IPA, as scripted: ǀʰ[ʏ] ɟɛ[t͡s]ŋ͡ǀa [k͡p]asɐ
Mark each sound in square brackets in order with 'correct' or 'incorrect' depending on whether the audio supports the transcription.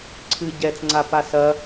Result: incorrect: ɨ, correct, incorrect: p

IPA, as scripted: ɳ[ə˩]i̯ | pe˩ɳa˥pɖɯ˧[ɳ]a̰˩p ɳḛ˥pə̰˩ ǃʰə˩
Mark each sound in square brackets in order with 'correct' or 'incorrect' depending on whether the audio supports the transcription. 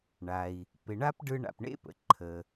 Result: incorrect: a˩, correct

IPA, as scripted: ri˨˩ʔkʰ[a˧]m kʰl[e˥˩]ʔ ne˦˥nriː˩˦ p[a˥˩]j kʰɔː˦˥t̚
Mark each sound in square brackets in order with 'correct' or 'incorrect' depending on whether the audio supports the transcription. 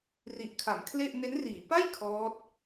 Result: incorrect: a˩˦, correct, correct

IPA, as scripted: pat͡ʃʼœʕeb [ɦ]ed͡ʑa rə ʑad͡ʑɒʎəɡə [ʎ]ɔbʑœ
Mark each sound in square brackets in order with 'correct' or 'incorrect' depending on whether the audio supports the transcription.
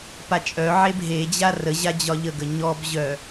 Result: correct, incorrect: ɲ

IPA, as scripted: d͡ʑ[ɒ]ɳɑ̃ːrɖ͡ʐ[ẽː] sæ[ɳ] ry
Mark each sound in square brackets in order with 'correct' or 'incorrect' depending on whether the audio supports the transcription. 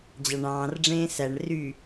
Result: incorrect: ɑ, correct, correct

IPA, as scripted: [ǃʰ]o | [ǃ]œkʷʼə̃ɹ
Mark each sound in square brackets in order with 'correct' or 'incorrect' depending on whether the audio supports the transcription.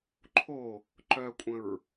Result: correct, correct

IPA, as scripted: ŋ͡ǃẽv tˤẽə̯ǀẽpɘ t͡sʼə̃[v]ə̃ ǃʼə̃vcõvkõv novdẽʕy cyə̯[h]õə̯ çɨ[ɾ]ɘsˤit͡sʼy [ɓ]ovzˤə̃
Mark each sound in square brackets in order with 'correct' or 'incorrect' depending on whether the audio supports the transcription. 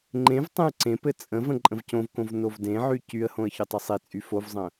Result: correct, correct, incorrect: tˤ, incorrect: f

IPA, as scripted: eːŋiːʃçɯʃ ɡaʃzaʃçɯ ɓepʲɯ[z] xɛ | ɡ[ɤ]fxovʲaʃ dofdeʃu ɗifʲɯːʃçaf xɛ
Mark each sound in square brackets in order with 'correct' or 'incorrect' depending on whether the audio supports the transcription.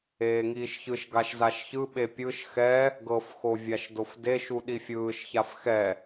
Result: incorrect: ʃ, correct

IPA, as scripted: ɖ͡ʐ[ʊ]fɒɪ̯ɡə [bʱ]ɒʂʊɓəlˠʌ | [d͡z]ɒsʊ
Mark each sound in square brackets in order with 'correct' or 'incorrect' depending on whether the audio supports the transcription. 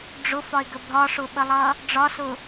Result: correct, correct, incorrect: ɖ͡ʐ

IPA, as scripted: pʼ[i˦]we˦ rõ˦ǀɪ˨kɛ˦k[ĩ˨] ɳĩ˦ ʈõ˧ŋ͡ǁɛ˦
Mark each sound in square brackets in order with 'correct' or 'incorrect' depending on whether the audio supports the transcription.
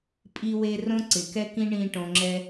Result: correct, incorrect: ĩ˦

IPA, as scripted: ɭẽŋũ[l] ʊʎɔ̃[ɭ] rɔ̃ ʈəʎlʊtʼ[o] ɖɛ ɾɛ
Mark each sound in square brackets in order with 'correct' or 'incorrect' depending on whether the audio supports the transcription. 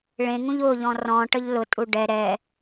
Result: incorrect: ʎ, incorrect: none, incorrect: u

